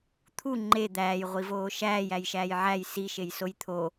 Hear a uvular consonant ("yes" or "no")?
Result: yes